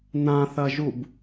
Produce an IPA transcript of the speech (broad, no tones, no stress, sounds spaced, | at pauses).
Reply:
n ã θ ɐ ʒ u b